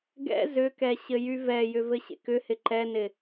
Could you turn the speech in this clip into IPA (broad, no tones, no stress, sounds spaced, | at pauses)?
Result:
ɡ ɛ̰ z ʏ k ɛ ɕ ɘ j y v ɛ j ʏ v ɘ ɕ ḛ k ʏ h ɪ ǃ ɛ n ɪ